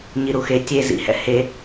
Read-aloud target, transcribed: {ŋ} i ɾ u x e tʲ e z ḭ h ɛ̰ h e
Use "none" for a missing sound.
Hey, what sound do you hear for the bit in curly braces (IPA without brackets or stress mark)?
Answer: ɲ